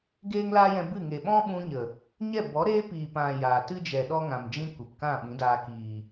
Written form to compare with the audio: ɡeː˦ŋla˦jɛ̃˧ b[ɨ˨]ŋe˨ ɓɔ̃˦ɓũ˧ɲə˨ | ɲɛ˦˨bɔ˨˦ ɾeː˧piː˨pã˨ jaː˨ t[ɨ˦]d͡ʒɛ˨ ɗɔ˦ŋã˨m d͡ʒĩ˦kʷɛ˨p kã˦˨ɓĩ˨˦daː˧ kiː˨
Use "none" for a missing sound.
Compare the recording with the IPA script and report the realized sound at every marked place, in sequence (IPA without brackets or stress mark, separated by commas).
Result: ɨ˦˨, ɨ˦